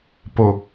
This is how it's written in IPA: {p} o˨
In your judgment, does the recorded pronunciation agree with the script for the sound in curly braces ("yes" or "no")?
yes